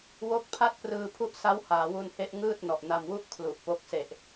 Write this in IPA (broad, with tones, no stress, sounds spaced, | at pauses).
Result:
w o˦˥ k̚ pʰ a˥˩ t̚ p r ɯː˧ pʰ u˦˥ ʔ s a˦˥ w h aː˩˦ w u˧ n h e˦˥ ʔ ŋ ɯː˥˩ t̚ n ɔ˨˩ ʔ n a˧ m w u˥˩ ʔ kʰ l u˨˩ ʔ p o˦˥ k̚ s e˨˩ ʔ